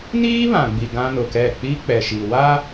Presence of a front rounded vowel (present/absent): absent